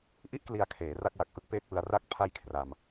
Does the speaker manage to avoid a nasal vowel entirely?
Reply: yes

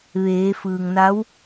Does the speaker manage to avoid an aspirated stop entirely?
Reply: yes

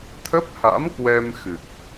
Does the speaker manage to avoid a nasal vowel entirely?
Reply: yes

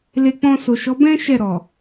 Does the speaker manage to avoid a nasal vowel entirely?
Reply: no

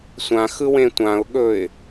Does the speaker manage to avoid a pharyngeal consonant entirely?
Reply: yes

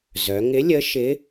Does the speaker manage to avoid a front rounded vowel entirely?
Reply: no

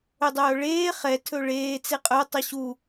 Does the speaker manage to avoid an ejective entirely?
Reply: no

